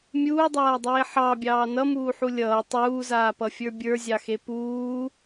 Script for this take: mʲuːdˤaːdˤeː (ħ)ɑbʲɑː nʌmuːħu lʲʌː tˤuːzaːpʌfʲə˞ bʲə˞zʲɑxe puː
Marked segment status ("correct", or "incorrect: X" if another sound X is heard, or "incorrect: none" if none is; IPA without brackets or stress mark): correct